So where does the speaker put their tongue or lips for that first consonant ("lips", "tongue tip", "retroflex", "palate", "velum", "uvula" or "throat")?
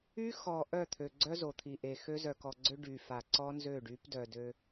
velum